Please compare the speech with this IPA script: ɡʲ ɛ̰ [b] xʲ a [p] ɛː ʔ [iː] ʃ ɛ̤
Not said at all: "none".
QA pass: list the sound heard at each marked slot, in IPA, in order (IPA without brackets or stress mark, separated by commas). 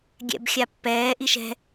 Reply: b, pː, i